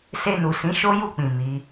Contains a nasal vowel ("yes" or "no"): yes